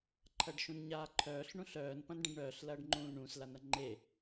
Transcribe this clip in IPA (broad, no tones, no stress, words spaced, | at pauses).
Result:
ǃʰɐɖʃũnɲaːǃʰœːɬ ɳũɬœːn pɐ̃nɖɐ̃ɖɳœːɬ lɐːɖŋ͡ǃũːlɳũs lanɐŋ͡ǃe